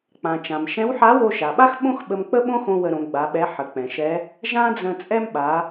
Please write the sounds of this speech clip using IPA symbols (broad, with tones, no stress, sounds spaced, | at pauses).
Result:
k͡p ã˩ t͡ʃ ã˩ m ʃ ɛ̃˧˥ w ħ a˧˥ w o˧ ʃ a˩ ɓ a˥ x ɓ õ˥ x ɓ ə˧ m k͡p ə˥ ɓ õ˥ x õ˥ w ə˧ ɾ õ˩˧ ɡ͡b a˩˧ ɓ ɛ˧˥ ħ ə˩ k͡p ɛ̃˩ ʃ ɛ˧˥ | ʒ ã˥ d͡z ə̃˧ t͡sʼ ɛ˥ m ɓ a˩˧